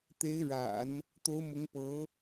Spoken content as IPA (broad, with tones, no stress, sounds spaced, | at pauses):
t̪ e˧˥ ɪ̯ ɻ a̰˨˩˦ n | t̪ o˧˥ ʊ̯ m ʊ˧˥ ŋ p ɤ˧˥